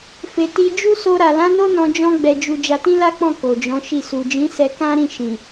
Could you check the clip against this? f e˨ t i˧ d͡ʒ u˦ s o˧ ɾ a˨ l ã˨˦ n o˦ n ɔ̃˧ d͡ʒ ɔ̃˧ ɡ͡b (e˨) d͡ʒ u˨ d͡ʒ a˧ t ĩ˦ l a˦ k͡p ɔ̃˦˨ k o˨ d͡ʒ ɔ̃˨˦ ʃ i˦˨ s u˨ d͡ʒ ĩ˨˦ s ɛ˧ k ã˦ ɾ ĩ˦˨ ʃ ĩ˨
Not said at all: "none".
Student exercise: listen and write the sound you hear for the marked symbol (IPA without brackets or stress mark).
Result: ɛ˨